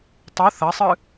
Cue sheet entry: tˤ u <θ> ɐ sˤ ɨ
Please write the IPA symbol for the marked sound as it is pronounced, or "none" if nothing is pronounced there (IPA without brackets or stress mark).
θ